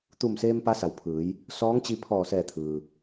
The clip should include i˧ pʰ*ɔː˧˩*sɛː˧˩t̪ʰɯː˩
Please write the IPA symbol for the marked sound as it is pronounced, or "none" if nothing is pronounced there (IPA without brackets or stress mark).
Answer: ɔː˧˩